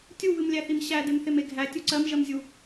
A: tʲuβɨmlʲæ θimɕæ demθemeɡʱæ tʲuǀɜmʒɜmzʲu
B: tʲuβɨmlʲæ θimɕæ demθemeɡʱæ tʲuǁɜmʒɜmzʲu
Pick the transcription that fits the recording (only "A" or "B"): A